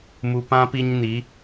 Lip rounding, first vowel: rounded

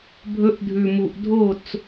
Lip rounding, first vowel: rounded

